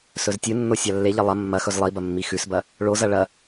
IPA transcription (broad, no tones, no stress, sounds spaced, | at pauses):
s ɵ z tʲ ɨ nː o sʲ a lː e ʎ ɐ lˠ ɐ mː ɐ x ɵ z lˠ i b ɐ mː i x ʉ s b ɐ | ɭ o z ɐ ɭ ɐ